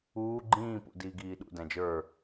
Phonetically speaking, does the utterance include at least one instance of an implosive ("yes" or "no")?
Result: yes